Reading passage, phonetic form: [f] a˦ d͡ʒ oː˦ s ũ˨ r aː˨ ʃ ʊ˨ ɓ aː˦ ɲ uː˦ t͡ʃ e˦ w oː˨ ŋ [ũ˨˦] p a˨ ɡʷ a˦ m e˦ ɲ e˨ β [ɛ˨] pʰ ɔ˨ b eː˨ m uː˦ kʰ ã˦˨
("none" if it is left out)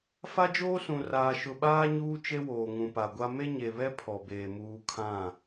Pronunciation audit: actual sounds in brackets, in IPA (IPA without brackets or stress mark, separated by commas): f, ũ˨, ɛ˦